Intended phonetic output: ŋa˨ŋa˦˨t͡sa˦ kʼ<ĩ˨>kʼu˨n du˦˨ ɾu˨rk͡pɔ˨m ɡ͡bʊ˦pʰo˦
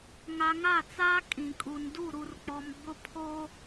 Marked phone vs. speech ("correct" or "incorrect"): correct